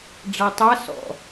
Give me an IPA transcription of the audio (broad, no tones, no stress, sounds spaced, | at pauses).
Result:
ɖ͡ʐ a tˤ a s ɔ̰